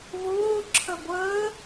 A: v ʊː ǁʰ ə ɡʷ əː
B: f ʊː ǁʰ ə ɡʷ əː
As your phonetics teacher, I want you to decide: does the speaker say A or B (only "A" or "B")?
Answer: A